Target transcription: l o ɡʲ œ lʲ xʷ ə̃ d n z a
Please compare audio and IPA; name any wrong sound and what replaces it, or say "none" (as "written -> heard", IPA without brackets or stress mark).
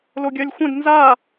none